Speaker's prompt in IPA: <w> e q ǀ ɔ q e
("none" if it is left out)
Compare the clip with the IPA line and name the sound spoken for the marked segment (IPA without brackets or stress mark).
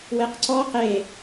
w